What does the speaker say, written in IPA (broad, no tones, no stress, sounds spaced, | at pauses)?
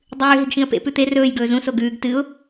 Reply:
dˤ ʉː ɦ i ɡ x ĩ ə̯ p ḛ p ʉ t̪ e r ɵː j ɡ ɵː z ũ s o ɡ ʉː ɡ t ɨ ʊ̯